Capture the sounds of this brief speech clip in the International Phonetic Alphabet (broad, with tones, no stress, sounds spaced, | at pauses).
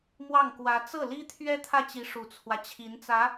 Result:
m w ɑ˥˩ ŋ k w ä˧˥ t͡s ɤ˥˩ l i˥ t̪ʰ ɥ ɛ˥ t̪ʰ ä˥˩ t͡ɕ i˧˥ ʂ u˨˩ t͡sʰ w ä˦ t͡ɕʰ i˧˥ n t͡s ä˧˥